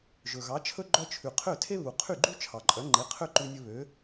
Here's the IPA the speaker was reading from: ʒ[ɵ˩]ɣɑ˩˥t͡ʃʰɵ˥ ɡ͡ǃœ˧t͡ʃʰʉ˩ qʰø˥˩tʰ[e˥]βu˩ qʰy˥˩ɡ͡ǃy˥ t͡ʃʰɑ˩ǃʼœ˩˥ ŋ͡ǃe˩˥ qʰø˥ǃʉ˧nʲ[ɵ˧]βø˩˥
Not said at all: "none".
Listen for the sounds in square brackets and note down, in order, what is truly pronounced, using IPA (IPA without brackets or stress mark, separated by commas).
ɵ˩, e˥, ɵ˧